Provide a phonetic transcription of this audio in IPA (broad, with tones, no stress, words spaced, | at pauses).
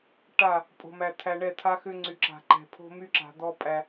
ʈa˦˨ | pʼo̤˨mæ˨ t̪ʰæ˨ɳɛ˦˨t̪ʰa˦xʏ˦ ŋ͡ǀy˨ǁa̤˨ǃɛ̤˨pʰo̤˦ my˦ǁa̤˨d̪ɔ˦pʼæ˦